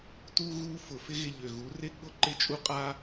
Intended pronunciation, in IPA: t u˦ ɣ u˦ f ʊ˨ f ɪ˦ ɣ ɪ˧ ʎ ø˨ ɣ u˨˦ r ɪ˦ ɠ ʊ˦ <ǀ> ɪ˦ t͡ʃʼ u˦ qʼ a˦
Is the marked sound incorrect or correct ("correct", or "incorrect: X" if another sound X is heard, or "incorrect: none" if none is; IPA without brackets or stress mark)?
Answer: incorrect: ǃ